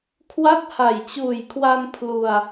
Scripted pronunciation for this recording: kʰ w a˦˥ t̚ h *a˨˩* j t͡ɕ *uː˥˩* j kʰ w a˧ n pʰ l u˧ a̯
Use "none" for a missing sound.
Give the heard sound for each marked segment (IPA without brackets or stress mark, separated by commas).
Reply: a˨˩, uː˨˩